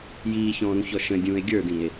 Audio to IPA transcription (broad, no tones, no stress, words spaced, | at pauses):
jiːçɔ̃ːɾũçɔ ʃə̃dʲũːe̯ ɡʲə˞dĩe̯